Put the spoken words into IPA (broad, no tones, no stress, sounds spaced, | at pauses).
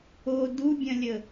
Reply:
o d u bʲ ɐ̃ lʲ ə